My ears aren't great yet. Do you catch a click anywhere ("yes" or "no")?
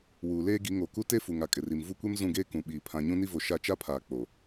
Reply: no